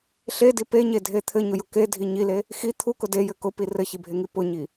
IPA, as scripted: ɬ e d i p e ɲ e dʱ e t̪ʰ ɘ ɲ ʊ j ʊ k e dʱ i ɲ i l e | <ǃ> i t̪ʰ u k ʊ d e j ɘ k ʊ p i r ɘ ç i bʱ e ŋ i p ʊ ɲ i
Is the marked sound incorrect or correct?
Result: incorrect